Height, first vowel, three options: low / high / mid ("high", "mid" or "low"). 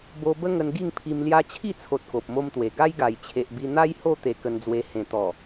mid